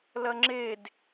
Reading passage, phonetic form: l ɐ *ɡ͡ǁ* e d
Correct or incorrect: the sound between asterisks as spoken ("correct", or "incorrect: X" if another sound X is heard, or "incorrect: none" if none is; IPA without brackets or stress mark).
incorrect: ŋ͡ǁ